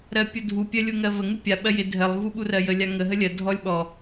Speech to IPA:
ɾ ɜ pʲ ʊ dʱ u pʲ ɜ lʲ u ŋ ɜ v ə ŋ u pʲ a ɓ ɜ j ɪ dʱ ɜ lˠ v u ɓ u r ɜ j ə lʲ a ŋ ə ɦ ə lʲ ɜ dʱ ɔ lʲ ɓ ɔ

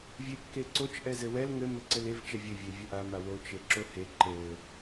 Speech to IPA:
vʲ e kː e ǀ o t͡ʃ ʔ ɛ z ɘ w ɛ l ŋ ɘ m ɘ ǀ ɘ l e v t͡ʃ ɛ vʲ ɘ vʲ e vʲ ɘ ʔ a m a w o t͡ʃ e ǁ o h e ǃ ɘ

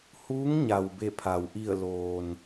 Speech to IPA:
h uː˧˥ ŋ ɲ a˩ w b e˧˩ pʰ a˩ w ʔ i˧˩ ə̯ l oː˩ n

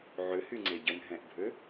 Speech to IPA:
ʕ ʏ h y ŋ͡ǀ e ɟ ə n ɦ ɛ̃ ʔ bʱ ø

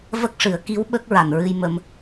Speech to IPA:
v ə˦˥ k̚ ʂ ɨ˨˩˦ ə̯ k i˧˥ w ɓ ə˦˥ k̚ ɹ a˨˩ n ɹ ɨ˧ j m ə˧ m

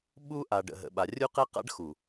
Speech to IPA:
ɓ u˦ ʔ a˨ ɖ ə̰˨ ɦ ə̰˨ ɓ a˨ rʲ u˦ q ɛ˦ q a̰˦ ɖ x u˨

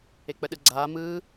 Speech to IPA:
e k͡p ə ɗ ɯ ɡ͡ǀ aː m ɯː

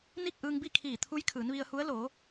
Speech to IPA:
n i˥˨ k̚ ʔ ɯː˧ ŋ b i˥˨ kʰ iː˧˩ t̪ʰ u˧˥ j kʰ ɯː˩˧ n ʋ i˧ ə̯ h u˧˥ ə̯ l oː˩˧

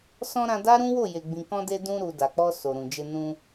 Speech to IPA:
s ɔ̃˧ ɾ ã˧ d a˦ ɾ ũ˦ w o˦˨ j e˨ ɡ͡b ĩ˨ k ɔ̃˧ d e˧ d ũ˧ ɾ u˨ d a˨ k͡p ɔ˧ s o˨ ɾ ũ˨ d͡ʒ e˧ n ũ˧

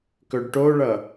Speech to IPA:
k ɵ ɖ ʈ o ɭ ʌ

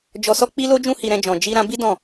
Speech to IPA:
d͡ʒ ɔ˧ s ɔ˦ k͡p i˦ l o˦ d͡ʒ ũ˦ h i˧ ɾ ɛ̃˧ d͡ʒ ɔ̃˨ d͡ʒ i˧ ɾ ã˧ b i˦ d ɔ̃˦˨

